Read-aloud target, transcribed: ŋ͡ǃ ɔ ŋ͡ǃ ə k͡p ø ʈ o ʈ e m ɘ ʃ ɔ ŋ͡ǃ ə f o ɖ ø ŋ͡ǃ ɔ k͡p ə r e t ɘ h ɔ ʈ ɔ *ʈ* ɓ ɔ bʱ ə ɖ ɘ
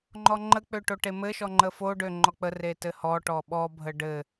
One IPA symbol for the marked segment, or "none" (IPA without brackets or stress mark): none